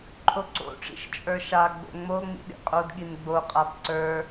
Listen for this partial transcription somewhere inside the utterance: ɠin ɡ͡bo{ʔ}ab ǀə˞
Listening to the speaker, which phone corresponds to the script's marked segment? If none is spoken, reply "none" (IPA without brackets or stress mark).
qʼ